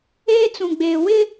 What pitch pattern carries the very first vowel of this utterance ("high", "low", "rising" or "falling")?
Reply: high